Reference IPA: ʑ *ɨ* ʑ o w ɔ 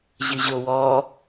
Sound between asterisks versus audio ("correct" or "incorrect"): correct